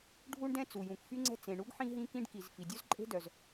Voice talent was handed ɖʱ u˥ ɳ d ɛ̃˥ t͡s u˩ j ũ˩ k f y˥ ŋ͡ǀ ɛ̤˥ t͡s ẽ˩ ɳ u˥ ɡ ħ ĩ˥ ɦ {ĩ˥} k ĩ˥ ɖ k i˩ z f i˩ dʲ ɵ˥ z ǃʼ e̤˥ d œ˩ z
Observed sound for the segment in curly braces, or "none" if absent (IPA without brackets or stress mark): ĩ˥